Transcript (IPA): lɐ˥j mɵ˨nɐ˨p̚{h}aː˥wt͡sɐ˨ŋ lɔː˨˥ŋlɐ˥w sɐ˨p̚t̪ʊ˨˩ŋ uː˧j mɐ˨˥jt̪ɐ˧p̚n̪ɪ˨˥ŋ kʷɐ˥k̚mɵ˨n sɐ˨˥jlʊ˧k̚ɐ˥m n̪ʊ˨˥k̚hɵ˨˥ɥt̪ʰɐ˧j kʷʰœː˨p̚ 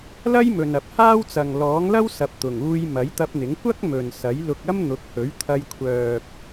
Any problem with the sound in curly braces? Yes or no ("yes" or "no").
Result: no